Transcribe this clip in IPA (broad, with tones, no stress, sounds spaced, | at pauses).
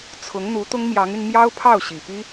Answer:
t͡sʰ ʊ˧˥ ŋ n̪ u˧˥ t̪ ʊ˥ ŋ m j ɑ˧˥ ŋ y˧ n m j ɑ˥ ʊ̯ pʰ ɑ˥˩ ʊ̯ ɕ i˨˩ p i˥